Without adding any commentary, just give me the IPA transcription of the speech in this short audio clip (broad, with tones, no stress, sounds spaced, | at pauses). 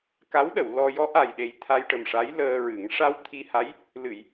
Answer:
k a˧˥ w ɗ ə˨˩˨ w l ɔ˧ j ɔ˧˥ ʔ a˨˩ j ɗ e˨˩ j t̪ʰ a˧ j ʈ ə˨˩ m ʂ a˧˥ j l əː˧ ɹ ɨ˨˩˦ ŋ ʂ a˧ w t̪ʰ i˧ h a˧˥ j | l ɨ˨˩˨ j